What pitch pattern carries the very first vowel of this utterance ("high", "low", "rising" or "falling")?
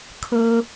high